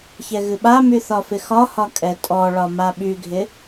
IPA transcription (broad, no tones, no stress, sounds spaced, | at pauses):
ç ɛ ɣ ɨ ɓ a m y θ ɒ f ɪ x ɒ h ɒ kʼ ɛ tʼ ɔ ɭ ɒ m a ɓ y ɡʱ ɪ